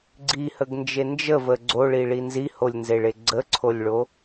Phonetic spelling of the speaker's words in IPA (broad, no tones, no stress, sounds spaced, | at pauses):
ɡ͡ǀ i h ə ɡ n d͡ʒ e n d͡ʒ ə v ə ɡ͡ǀ o ɭ i ɭ i n z i h o lʲ n z e ɭ e ɡ͡ǀ ə ǀʰ o lʲ ɭ o